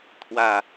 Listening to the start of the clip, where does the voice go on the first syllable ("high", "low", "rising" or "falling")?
low